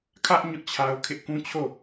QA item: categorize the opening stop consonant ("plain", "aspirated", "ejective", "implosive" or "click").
aspirated